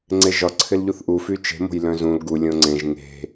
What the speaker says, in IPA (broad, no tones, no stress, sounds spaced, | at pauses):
ŋ͡ǀ e ʒ ɒ ǀʰ ɪ l ʎ u θ ʔ u f y t͡ʃ e̤ m o̤ j l œ̃ z ũ l ɡ u lʲ õ ŋ͡ǀ ẽ ʒ ŋ e̤